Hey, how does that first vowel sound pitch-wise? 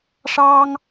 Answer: high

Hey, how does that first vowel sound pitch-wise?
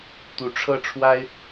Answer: rising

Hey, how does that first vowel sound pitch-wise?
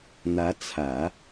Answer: rising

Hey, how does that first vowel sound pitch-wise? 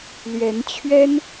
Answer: rising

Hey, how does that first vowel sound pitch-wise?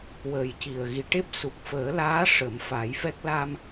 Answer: low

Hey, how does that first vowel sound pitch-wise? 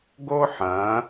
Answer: high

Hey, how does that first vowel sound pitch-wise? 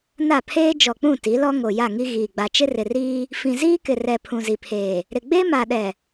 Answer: falling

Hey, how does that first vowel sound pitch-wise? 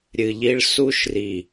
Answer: low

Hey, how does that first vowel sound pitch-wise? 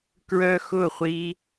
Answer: high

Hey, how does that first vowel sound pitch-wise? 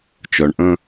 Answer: low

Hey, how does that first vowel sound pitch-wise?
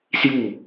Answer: falling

